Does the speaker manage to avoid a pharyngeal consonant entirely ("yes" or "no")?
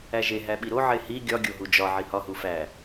no